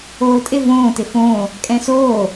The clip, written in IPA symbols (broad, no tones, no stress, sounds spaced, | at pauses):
oː tʼ ɪ v õː t ɪ f õː | kʼ ɛ̃ s oː